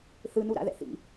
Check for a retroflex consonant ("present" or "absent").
absent